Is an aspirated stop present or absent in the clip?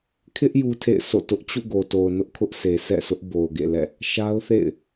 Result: present